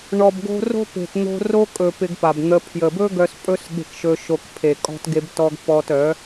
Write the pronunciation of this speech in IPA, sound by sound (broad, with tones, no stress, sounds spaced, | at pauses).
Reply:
ɳ ɔ˨ b ɡ o̤˧ r o̤˦ p e̤˨ t n̪ o̤˧ r o˦ kʼ ɵ˨ p ɪ˧ ɡ p a˨ b n̪ ə˧ pʰ j ə˨ b ɵ˦ ɡ œ˧ s pʼ ɵ˦ s ɠ e̤˧ k ʃ ɵ˧ ʃ o˧ k pʰ e˨ kʼ ɔ̤˦ t ɡ e˦ b t ɔ˦ ɡ p ɔ˧ t œ˨˦